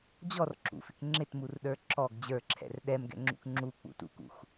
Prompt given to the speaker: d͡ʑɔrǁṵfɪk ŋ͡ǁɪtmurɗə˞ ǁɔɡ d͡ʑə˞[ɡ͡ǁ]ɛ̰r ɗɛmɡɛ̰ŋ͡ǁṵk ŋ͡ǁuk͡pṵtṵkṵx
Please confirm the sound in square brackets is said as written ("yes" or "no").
no